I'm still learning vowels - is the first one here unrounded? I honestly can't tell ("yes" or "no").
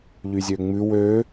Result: no